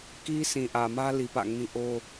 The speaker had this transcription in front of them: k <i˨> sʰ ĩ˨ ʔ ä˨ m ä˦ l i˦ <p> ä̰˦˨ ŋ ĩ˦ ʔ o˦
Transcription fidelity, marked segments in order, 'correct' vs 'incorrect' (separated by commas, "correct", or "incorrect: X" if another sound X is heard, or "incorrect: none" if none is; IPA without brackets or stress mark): incorrect: i˦, correct